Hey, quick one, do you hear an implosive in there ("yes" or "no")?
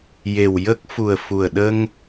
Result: yes